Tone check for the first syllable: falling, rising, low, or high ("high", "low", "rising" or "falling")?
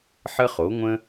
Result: high